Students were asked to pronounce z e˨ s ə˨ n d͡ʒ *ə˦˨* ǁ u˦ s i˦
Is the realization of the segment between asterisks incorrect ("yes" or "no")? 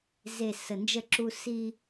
no